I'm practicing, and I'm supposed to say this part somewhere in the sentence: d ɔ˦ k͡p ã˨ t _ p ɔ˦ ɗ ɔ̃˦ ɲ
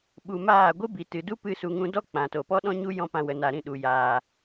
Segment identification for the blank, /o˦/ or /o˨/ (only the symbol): o˨